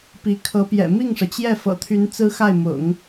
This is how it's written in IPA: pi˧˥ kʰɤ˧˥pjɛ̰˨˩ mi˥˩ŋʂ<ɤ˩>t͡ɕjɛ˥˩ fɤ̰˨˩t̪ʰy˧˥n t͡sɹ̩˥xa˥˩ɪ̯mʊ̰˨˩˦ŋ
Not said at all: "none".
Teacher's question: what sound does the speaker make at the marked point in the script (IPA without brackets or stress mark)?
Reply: ɤ˩